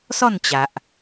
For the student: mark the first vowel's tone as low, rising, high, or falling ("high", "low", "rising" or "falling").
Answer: falling